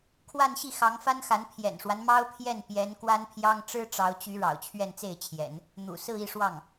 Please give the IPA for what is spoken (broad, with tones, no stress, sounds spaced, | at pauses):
kʰ w a˥˧ n ɕ i˥˩ x ɑ˧˥ ŋ f a˥ n x a˧˥ n pʰ j ɛ̰˨˩ n ʂ w a˦ n m ɑ˥ ʊ̯ pʰ j ɛ˥˩ n p j ɛ˧˥ n k w a˥ n pʰ j ɑ˥ ŋ ʈ͡ʂ ɻ̩˥ ʈ͡ʂ ɑ˧˥ ʊ̯ t͡ɕ y˧˥ ɻ ɑ̰˨˩ ʊ̯ t͡ɕʰ ɥ ɛ˥˧ n t͡s e˥˩ ɪ̯ t͡ɕʰ j ɛ̰˨˩˦ n | n̪ ṵ˨˩ s ɹ̩˥˧ i˥˧ ʂ w ɑ˥˩ ŋ